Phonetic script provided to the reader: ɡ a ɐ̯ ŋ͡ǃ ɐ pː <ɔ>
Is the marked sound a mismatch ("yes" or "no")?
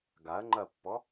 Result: no